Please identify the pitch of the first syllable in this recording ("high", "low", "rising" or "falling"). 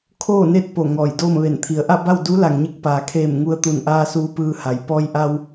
falling